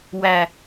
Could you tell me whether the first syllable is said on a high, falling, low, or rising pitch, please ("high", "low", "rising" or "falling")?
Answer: low